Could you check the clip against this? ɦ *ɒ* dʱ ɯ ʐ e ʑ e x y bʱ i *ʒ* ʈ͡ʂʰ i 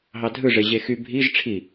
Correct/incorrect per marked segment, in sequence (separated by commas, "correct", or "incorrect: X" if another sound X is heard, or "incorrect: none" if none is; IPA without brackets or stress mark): incorrect: ɑ, correct